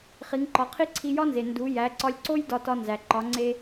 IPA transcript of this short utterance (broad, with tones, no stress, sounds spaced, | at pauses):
χ i˩˧ ŋ ǃ ɒ˩˧ qʰ i˥ ǀʰ i˧ j ɒ˥ n z e˩ n d u˩˧ j æ˩˧ ǀ ɒ˧ lʲ ǀ o˥ j d ɒ˧ t ɒ˧ n z æ˩ ǃ ɒ˩˧ ŋ͡ǀ e˧